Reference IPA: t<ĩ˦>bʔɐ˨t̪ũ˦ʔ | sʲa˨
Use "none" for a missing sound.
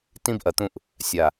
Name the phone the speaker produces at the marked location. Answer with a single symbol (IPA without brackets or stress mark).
ĩ˦